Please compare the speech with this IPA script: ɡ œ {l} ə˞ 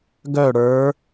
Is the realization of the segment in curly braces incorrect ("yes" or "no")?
yes